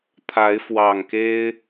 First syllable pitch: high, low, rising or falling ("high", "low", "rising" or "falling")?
rising